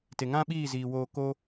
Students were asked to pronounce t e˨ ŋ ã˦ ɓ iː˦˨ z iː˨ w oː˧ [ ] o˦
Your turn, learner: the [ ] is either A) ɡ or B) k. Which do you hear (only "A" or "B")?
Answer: B